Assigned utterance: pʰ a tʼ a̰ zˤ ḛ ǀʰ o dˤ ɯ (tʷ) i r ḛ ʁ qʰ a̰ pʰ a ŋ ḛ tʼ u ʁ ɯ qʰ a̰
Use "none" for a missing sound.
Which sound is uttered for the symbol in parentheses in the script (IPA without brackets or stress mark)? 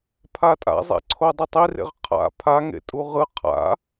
tˤ